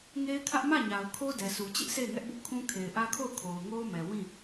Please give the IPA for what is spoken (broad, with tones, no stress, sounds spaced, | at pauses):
ŋ e˦ ɪ̯ kʰ ä˦ ʔ m ä˦˨ ɲ a˨ ʊ̯ kʰ o˦ d ɛ˨ s u˨ t͡ɕ ɪ˦ ʔ sʰ e˦˨ ɪ̯ ŋ ɛ˦ ʔ b ʊ˦ ʔ kʰ ũ˦ kʰ e˨ ɪ̯ ʔ ä˦ kʰ o˦˨ ʊ̯ kʰ o˨ ʊ̯ ŋ o˦ ʊ̯ m ɛ˨ w ĩ˦˨